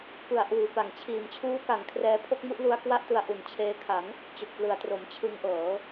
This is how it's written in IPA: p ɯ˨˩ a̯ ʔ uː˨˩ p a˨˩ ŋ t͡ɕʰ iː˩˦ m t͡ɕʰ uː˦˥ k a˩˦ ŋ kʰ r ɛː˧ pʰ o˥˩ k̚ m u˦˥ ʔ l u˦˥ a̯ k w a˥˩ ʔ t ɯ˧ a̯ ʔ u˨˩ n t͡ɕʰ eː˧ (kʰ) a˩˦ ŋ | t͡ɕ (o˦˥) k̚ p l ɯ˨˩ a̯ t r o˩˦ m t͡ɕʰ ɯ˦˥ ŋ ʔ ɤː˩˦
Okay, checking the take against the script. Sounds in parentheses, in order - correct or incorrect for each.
correct, incorrect: o˨˩

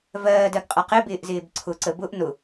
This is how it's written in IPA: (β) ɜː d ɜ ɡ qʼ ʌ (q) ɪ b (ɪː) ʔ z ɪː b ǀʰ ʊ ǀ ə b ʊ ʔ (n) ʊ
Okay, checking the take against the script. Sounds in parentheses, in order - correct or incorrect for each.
incorrect: v, correct, correct, correct

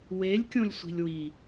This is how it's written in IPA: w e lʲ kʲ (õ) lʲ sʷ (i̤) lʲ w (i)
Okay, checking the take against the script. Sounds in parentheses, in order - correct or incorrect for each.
correct, correct, correct

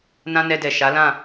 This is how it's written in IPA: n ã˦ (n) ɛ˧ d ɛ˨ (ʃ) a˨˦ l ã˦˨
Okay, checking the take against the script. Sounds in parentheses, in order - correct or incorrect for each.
correct, correct

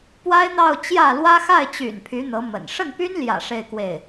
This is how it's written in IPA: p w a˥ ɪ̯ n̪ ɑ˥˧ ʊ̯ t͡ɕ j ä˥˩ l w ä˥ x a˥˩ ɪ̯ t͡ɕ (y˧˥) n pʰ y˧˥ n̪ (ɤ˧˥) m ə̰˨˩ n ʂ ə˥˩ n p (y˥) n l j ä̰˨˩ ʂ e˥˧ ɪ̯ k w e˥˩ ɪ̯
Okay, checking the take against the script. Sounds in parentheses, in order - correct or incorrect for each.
incorrect: y̰˨˩, correct, correct

